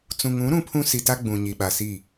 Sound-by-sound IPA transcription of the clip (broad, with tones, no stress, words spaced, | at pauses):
t͡sũ˨ŋũ˨˦ ɾũ˦pʰũ˦si˨ta˦ ɡ͡bũ˨ ɲi˨ɓa˨si˦˨